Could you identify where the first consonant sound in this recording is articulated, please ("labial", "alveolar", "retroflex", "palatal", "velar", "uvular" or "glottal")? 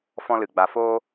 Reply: labial